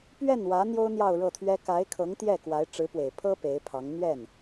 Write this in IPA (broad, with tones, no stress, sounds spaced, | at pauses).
p ɥ ɛ˥˩ n w ä˧˥ n̪ j o˥ ʊ̯ n̪ j ɑ˥˧ ʊ̯ ɻ ɤ˥˩ t̪ʰ ɥ ɛ˥ k a˧˥ ɪ̯ kʰ ɤ˧˥ ŋ t̪ j ɛ˥˩ k w a˧˥ ɪ̯ ʈ͡ʂ ɻ̩˧˥ p w e˨˩ ɪ̯ pʰ ɤ˥ p e˧˥ ɪ̯ pʰ ɑ˧˥ ŋ n̪ ɥ ɛ˥˩ n